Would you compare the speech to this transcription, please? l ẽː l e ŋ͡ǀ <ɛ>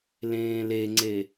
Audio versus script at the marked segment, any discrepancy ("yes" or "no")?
yes